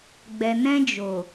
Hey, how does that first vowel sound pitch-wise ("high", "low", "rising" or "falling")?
low